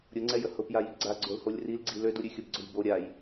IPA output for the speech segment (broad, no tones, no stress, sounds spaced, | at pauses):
ɾʲ ʊ ŋ͡ǀ ɛ j ə h ʊ p j a j i ɡ͡ǀ a ɡ͡ǀ o l h o lʲ r i l ɡ͡ǀ i l ø d u ɾʲ ʉ xʲ ʊ b ɡ͡ǀ ʊ j b o ɾʲ a j